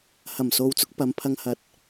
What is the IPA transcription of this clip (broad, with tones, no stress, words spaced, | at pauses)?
hɐ˨˩mso˨wt͡sʊ˧k̚ pɐ˨˧mpʰɐ˧ŋ hɐ˧t̚